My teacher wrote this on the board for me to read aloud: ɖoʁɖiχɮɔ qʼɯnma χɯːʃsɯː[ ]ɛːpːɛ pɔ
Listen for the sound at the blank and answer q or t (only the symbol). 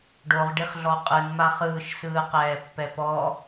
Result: q